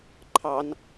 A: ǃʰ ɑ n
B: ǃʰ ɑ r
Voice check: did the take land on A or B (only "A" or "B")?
A